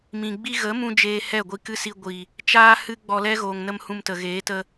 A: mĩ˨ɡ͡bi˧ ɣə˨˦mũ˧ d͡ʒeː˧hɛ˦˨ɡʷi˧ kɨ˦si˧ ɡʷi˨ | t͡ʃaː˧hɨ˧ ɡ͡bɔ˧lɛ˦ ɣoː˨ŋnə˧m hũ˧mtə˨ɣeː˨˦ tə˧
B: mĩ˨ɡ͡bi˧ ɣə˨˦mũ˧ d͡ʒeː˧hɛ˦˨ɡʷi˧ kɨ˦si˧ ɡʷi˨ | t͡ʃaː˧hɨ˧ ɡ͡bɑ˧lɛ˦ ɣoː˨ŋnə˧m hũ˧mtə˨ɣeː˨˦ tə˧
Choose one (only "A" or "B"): A